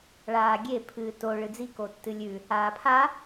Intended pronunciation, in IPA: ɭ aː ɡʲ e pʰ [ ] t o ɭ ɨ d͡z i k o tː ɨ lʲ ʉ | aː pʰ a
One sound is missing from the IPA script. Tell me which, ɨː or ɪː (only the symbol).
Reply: ɨː